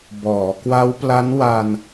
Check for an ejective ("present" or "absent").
absent